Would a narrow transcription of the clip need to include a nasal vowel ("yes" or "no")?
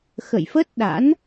no